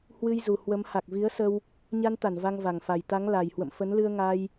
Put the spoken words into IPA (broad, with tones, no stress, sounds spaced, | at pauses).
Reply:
h w ɨ˧ j z u˨˩ h w ə˨˦ m h a˨˩ k̚ v i˨˦ ə̯ s ə˧ w | ɲ a˧ n t̪ a˧˩ n v a˧ ŋ v a˨˩ ŋ f a˨˩ j t̪ a˨˦ ŋ l a˨˩ j h w ə̰˧˨ m f ə˨˦ n l ɨ˧ ə̯ ŋ a˧ j